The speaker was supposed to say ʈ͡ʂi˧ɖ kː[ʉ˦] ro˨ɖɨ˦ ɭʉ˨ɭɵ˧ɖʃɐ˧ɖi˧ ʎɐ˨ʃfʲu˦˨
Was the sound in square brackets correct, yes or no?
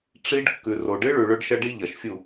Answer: no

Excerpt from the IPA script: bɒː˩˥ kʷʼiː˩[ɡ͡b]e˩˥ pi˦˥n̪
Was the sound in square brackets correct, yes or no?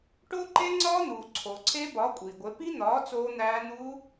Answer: no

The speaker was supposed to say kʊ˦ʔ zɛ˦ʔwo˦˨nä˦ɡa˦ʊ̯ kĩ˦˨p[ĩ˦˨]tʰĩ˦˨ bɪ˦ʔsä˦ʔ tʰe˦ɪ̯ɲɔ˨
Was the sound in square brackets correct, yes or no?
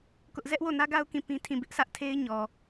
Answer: no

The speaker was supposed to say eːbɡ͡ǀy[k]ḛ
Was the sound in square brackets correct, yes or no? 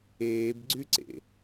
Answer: no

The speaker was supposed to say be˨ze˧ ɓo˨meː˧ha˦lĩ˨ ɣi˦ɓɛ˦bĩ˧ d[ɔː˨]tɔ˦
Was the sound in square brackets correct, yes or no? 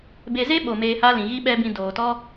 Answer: no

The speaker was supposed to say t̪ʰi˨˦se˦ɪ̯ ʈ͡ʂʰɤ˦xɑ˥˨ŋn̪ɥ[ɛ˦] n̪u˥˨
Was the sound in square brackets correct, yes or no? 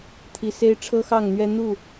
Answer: yes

